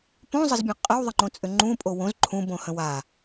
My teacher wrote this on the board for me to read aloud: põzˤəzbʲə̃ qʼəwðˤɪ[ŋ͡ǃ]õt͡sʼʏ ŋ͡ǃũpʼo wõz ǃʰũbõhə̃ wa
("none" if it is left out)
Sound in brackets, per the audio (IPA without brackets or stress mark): ŋ͡ǃ